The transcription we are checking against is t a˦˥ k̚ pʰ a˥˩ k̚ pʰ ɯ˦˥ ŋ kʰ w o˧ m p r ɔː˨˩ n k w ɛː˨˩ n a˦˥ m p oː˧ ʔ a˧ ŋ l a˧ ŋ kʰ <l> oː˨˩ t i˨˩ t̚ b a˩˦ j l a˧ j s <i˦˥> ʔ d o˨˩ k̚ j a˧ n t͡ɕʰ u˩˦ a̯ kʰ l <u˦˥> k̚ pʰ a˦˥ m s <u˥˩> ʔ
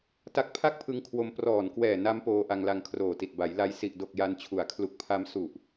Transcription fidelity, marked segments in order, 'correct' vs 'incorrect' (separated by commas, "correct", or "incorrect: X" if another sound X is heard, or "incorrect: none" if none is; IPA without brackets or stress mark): incorrect: r, incorrect: i˨˩, incorrect: u˨˩, incorrect: u˨˩